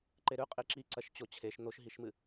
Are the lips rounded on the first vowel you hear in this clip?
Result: no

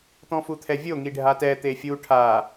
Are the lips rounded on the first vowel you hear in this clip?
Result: yes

